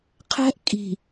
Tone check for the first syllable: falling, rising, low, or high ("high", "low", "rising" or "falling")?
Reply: high